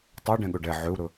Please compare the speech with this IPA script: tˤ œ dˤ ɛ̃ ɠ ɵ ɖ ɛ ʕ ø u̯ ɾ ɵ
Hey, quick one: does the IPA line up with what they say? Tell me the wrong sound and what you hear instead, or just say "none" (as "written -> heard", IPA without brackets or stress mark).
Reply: dˤ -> ɖ